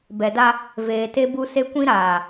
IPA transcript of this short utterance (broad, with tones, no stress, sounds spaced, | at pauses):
b ɛ˨ d a˦ | v eː˨ t e˦ b u˦ s e˦ kʷ ĩ˦ ɾ aː˨